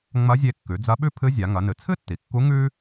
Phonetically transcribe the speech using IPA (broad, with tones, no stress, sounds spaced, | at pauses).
ŋ͡m ɐ˧˥ zʲ e˧ kː ʉ˩˧ d͡z ɐ˧˥ ɓ ʉ˥ pʰ ɨ˧˥ zʲ a˩˧ ŋ ɐ˩˧ n ɨ˩ t͡sʰ ɨ˥ tː i˩ kː u˧˥ ŋ ʉ˥